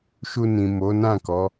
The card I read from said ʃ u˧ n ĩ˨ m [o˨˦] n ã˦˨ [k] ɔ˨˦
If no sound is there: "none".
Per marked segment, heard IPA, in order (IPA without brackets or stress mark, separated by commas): o˨˦, k